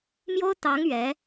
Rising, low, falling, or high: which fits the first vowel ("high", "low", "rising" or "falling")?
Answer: high